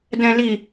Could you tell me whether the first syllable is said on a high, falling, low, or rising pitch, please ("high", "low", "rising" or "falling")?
low